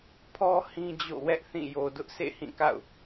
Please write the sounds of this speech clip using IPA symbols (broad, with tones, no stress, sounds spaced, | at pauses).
pʰ ɔ˦ h ĩ˦ d͡ʑ o̰˦˨ w ɛ˦ ʔ θ ĩ˦˨ j o˨ d ʊ˦ ʔ s ḛ˦˨ h ĩ˦˨ k a̰˦˨ ʊ̯